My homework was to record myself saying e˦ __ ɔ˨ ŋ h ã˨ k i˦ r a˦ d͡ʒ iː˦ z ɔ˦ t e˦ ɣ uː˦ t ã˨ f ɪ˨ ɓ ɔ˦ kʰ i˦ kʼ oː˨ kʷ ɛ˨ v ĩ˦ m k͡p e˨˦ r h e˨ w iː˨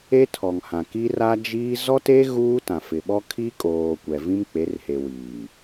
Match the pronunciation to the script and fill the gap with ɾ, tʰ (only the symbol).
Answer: tʰ